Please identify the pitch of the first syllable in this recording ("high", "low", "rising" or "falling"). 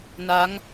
rising